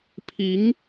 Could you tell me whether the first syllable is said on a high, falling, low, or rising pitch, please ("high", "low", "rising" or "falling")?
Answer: rising